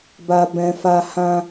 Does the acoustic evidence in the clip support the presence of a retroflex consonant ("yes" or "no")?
no